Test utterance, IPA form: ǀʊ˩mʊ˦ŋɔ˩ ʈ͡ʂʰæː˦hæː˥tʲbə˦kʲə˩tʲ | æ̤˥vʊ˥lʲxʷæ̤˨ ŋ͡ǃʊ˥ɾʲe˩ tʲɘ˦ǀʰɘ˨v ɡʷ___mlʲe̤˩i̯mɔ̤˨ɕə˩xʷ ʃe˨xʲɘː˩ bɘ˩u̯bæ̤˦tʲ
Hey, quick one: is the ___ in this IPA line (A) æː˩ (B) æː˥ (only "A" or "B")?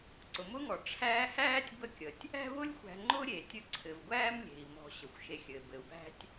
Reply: B